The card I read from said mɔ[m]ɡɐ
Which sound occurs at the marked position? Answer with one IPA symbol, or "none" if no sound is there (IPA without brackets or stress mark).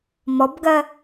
b